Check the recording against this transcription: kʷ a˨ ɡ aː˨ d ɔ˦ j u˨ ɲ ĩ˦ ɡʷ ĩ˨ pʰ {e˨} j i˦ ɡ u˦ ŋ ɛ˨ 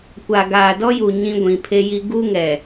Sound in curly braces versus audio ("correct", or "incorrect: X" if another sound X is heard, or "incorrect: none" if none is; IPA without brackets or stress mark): incorrect: e˦